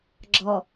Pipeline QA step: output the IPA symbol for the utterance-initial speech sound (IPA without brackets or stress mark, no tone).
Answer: ɡ͡ǁ